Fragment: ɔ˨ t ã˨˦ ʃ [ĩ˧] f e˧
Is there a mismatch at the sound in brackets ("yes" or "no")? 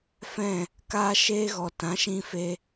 no